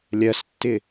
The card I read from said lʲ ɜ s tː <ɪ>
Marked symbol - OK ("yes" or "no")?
yes